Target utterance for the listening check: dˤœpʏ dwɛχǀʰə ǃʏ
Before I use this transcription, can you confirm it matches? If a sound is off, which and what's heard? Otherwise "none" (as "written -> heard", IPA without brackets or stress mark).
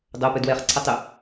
ǃ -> tˤ